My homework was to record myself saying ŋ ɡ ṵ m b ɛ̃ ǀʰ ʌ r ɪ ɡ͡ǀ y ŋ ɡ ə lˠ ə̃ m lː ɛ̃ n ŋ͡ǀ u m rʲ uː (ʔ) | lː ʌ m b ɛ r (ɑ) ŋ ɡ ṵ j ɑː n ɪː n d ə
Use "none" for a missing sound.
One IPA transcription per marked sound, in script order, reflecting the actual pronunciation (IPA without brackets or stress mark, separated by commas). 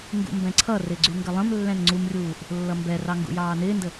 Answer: ʔ, ɑ